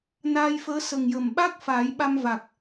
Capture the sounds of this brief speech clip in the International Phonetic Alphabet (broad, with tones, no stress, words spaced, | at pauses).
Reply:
naː˧jfəː˧˥ sə˨˩ŋjə˨˩m ɓa˦˥k̚ faː˨˩˦jɓa˧mva˨˩k̚